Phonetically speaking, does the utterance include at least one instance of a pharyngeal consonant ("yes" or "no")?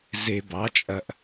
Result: no